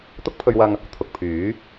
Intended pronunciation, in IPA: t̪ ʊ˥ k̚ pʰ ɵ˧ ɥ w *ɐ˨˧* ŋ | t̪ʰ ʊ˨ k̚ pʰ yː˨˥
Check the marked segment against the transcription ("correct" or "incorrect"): incorrect